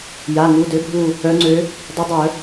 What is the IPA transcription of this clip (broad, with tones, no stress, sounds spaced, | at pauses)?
j a˩˧˩ ŋ u˩˧˩ d ø˧˥ bʱ u˦˨ | œ˧˥ ŋ͡ǀ ø˧˥ | dˤ ɛ˧˥ dˤ œ˨˩˦